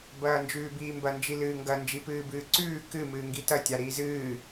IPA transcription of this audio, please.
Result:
b ɐː n d͡ʒ ʉː b iː m b ɐ n d͡ʒ i l ɨː ŋ ɡ ɐ n d͡ʒ i p ɨː b ɨː ǀ ʉː k ɨ m ɨː ŋ ɡ i t ɐ tʲ a ɾ iː z ɨː

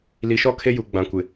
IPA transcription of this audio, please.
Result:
l i˨ ʃ ɔ˦ kʰ e˦ j u˨ ɡ͡b ã˨ kʷ ɪ˨

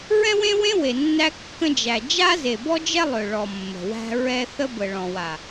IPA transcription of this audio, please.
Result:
ɹ ɛ̃˦ w ẽ˦ w ẽ˦ w e˨ nː æ˦ kː ə̃˦ d͡ʒ æ˨ d͡ʒ a˦ z e˨ b ɔ˦ d͡ʒ ɛ˦ lˠ ø˨ ɭ ɔ˨ mː ə̤˨ w æ̤˦ ɹ ɛ˦ θ ə˦ b ə˨ ɭ ɔ̃˨ w a˨

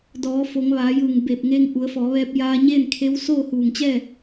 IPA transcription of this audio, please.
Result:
d ɔː˩˧ f o˩˧ ŋ ʋ aː˩˧ j ɯː˧˩ ŋ b eː˧˩ p̚ ŋ eː˧ ŋ ʔ u˩˧ ə̯ f ɔː˩˧ ʋ ɛː˧ p̚ j aː˧ ɲ eː˥˨ n kʰ e˧˥ w s oː˥˨ h uː˧˩ ŋ t͡ɕ ɛː˥˨

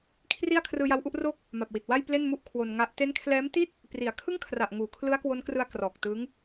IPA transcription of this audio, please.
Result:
kʰ r i˥˩ a̯ kʰ r ɯː˧ j a˧ w ʔ u˥˩ ʔ r oː˥˩ k̚ | m a˨˩ p̚ w i˨˩ t̚ w a˥˩ j p l e˥˩ n m u˥˩ ʔ kʰ w o˧ n ŋ a˦˥ ʔ t e˦˥ n kʰ l ɛː˦˥ m t i˥˩ t̚ | p r i˩˦ a̯ kʰ ɯ˥˩ ŋ kʰ r a˨˩ ʔ ŋ uː˩˦ kʰ l ɯ˦˥ a̯ k w o˦˥ n k r ɯ˧ a̯ k r ɔː˨˩ k̚ t ɯː˦˥ ŋ

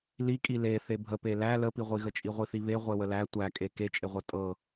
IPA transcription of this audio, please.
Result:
l i kʼ i l e θ e bʱ ə p e l æ l ə p i ʁʷ i ɣ ə t͡ʃʼ i ʁʷ i θ i β e ʁʷ e w ə l æ tʷ æ kʼ e k e t͡ʃʼ e ʁʷ ɤ tʼ ɤ

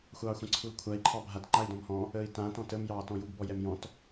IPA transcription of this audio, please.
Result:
xʷ ɑː xʷ ã ǀʰ u l kʷʰ a i̯ ǃʰ ɑ bʱ a t ŋ͡ǃ a i̯ d ɔ̃ m h ɔ̃ | əː i̯ t ã t ɔ̃ t ə m j ɑː t ɔ̃ j u ɡ b ɔ j ɛ m j ɔ̃ t

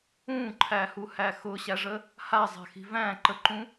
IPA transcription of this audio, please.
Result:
ũ ǃʰ æ h u h æ x ʊ ɕ æ ʐ ə | h a zˤ a̤ x i̤ v æ̃ ǃ ə ǃ ũ

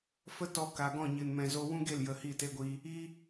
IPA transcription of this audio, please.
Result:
f ə˦ t ɔ˧ k a˨ ɡ ɔ̃˦˨ ɲ ɨ˨ n m ɛ̃˨ z o˧ w ũ˦ ɡ e˦˨ l j ə˧ h i˦˨ t e˦ ɡʷ iː˦ | i˦

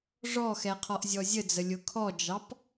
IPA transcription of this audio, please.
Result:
ʐ ɔ x ɛ qʰ ɔ ʔ zʲ ɔ zʲ ə d͡z ə lʲ ʊ kʰ ɔ d͡ʒ ɑ p

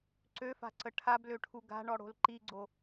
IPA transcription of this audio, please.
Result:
ǀ ø f a̤ ǀ ə ʈʰ a b l ø ʈʰ u ɡ a̤ ɳ ɔ ɽ o̤ l ǃ i ɡ͡ǀ o

